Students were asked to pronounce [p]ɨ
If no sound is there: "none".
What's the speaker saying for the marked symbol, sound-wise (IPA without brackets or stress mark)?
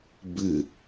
b